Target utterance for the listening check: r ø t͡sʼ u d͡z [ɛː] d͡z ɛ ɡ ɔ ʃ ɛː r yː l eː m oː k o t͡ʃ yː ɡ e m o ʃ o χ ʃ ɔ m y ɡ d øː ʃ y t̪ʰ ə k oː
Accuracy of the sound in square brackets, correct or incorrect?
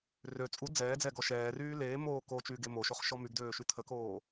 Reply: correct